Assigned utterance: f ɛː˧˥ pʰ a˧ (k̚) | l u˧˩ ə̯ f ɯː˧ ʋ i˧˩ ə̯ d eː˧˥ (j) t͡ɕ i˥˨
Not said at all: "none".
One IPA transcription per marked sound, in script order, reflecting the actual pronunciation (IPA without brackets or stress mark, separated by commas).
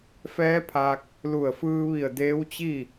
k̚, w